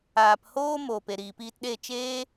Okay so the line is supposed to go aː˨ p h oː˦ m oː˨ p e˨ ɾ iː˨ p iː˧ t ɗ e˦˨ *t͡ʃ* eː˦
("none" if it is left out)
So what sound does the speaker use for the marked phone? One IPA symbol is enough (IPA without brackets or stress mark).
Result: t͡ʃ